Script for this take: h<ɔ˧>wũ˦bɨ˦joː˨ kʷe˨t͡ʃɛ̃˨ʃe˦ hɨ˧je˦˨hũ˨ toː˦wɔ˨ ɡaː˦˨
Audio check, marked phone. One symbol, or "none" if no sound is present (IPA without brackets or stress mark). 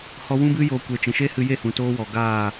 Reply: ɔ˧